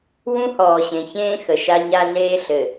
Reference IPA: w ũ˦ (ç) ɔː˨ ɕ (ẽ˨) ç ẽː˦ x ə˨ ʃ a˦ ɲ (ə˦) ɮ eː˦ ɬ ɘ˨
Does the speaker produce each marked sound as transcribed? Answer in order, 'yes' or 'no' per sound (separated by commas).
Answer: no, yes, no